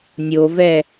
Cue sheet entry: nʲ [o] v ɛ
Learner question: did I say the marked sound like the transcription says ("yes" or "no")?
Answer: yes